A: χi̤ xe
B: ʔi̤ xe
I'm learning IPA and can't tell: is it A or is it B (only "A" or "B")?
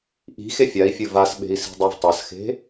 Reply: B